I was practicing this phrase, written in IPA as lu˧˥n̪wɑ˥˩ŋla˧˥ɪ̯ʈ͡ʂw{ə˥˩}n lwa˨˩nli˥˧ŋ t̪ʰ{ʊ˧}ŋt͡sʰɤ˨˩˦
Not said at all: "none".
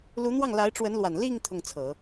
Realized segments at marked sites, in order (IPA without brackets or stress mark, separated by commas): ə˧˥, ʊ˥˩